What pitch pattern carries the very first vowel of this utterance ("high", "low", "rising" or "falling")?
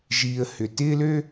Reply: low